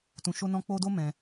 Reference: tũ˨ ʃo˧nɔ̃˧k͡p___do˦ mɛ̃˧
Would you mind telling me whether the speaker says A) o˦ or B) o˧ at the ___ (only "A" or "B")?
B